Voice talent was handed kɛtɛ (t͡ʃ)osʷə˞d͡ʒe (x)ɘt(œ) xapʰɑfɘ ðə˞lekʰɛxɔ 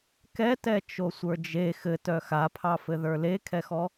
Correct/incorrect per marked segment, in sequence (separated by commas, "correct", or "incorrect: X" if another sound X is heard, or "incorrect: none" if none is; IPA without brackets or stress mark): correct, correct, correct